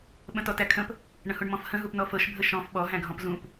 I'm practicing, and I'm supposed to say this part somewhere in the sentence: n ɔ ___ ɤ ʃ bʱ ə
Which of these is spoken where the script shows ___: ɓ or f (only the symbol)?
f